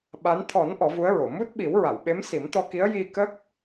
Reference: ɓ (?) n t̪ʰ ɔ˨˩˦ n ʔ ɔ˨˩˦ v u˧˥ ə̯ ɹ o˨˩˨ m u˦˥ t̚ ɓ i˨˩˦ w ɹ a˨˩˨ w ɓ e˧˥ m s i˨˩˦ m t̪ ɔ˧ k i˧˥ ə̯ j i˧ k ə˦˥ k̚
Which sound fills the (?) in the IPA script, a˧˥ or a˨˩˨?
a˧˥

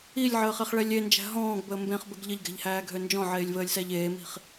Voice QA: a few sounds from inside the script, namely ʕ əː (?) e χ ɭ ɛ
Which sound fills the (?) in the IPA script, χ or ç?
χ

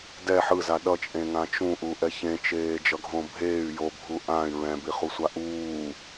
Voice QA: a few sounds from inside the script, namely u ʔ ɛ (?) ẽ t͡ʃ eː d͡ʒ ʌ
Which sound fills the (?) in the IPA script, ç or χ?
ç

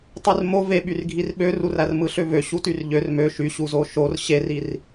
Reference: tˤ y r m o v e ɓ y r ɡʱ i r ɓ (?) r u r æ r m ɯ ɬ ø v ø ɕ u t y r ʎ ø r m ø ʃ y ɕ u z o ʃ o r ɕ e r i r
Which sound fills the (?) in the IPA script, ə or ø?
ø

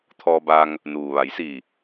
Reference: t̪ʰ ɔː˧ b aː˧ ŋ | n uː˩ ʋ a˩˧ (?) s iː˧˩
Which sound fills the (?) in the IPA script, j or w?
j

